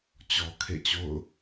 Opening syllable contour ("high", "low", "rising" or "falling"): low